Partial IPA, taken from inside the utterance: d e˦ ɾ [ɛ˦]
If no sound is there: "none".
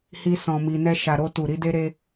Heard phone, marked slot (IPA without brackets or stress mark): e˦